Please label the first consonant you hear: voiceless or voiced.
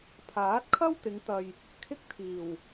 voiceless